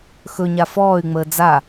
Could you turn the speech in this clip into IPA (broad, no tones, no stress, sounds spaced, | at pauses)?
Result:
x ɵ ɲ a f ɔː y̯ ŋ͡m əː d͡z a